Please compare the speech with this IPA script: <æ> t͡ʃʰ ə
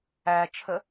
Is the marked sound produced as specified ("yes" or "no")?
yes